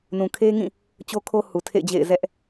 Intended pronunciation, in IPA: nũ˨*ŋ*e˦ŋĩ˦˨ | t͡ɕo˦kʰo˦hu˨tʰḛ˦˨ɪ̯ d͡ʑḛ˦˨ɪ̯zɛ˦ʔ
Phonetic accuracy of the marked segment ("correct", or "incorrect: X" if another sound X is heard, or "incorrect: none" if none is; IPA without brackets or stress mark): incorrect: kʰ